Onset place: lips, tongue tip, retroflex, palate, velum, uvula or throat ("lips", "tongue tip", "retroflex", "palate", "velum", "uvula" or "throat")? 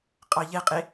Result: uvula